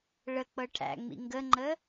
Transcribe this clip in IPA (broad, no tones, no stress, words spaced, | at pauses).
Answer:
ɭək͡pɤ ʈʰæ̰ŋ͡mḭ ŋɡəŋ͡ǃə